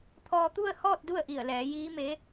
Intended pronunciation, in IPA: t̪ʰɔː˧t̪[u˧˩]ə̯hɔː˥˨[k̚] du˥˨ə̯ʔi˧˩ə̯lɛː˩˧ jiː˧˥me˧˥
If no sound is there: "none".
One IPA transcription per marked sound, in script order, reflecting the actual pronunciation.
u˥˨, t̚

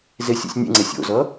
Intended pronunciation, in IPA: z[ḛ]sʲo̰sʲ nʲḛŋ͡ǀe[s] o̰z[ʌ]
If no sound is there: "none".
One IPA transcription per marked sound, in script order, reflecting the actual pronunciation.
e, sʲ, ʌ

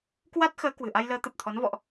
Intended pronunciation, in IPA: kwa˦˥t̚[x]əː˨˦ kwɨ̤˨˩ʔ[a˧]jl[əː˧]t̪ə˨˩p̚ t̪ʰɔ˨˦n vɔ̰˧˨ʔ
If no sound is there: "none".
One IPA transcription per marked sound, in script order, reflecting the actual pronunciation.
x, a˧, əː˨˦

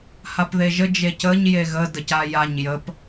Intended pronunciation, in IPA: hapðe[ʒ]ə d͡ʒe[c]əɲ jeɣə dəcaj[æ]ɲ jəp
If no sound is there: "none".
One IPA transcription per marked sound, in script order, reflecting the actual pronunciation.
ʒ, c, a

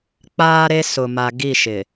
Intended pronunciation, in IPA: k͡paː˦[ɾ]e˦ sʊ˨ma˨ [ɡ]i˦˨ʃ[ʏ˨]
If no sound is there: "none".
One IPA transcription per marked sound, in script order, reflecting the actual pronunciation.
ɾ, ɡ, ɪ˨

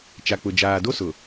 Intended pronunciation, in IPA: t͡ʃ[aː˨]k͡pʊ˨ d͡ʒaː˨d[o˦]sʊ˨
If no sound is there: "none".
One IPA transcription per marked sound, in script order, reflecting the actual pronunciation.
a˨, o˦

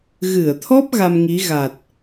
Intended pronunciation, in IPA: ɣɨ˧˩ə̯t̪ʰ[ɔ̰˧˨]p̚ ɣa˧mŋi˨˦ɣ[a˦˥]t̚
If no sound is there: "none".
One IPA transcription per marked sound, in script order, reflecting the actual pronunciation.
ɔ˦˥, a˨˩

